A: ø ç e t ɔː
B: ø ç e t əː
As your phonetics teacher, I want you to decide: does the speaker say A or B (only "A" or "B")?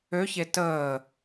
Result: B